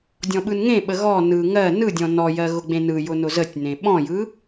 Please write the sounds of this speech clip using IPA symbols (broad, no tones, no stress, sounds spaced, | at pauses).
dʲ ɔ̃ ɓ ɯ n ŋ ẽ ɓ ə ɣ ɔ n ɯ ŋ ɜ n ɯ dʲ ɔ̃ n ɔ j ɜ ɣ ʊ ɡ͡b ẽ n ɯ j ʊ n ʊ z ə tʲ n ẽ ɓ ɔ̃ j ɯ